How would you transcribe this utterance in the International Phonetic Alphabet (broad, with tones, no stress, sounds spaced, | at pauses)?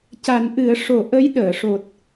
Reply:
c a˨˩˦ n ʔ ɨ˨˩˦ ə̯ ʂ o˨˩˦ ʔ ə˧˥ j ɗ əː˨˩˨ ʂ o˨˩ t̚